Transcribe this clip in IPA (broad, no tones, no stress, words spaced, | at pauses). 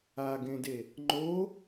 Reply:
aɡẽde | ŋ͡ǃo